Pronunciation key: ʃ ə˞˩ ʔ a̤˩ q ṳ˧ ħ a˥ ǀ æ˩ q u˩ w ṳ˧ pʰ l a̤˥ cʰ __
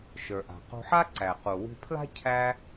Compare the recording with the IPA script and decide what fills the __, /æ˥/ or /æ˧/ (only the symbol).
æ˥